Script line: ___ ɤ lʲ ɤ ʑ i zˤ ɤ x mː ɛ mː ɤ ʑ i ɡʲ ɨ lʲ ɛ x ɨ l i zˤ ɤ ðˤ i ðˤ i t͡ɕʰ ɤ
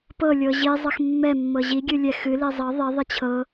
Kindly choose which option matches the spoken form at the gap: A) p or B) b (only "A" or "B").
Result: A